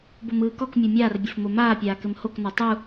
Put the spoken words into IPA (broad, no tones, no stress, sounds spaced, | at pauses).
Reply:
b o m ɯː k ɔ k mʲ o mʲ aː r bʲ ɘ f m o m aː pʲ aː k ɘ m h o k n ɔ tˤ u